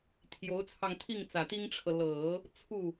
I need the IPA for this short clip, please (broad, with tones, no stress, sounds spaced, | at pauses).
t̪ʰ j o˧˥ ʊ̯ t͡sʰ ɑ˧ ŋ t̪ʰ i˥˩ ŋ t͡s ä˨˩ t̪ i˥ ŋ ʈ͡ʂʰ ɤ˨ l ɤ˨˩˦ | t͡sʰ u˥˩